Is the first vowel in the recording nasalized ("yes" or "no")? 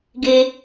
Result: no